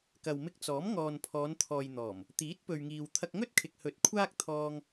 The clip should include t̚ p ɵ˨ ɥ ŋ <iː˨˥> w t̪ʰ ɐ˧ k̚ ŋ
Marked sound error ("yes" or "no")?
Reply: yes